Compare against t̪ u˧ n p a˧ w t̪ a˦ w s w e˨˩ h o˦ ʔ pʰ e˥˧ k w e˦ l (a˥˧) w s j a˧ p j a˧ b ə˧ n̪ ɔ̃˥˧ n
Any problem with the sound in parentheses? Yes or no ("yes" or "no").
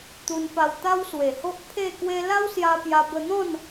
yes